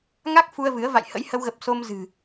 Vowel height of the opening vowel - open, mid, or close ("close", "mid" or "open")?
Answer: open